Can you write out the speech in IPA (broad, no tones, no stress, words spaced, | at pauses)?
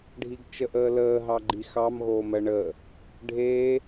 ɖʱiɡt͡ʃəʔəːləː ɦɑɡ͡ǃixɑm ɣoːmɜɳəː | ɖʱeː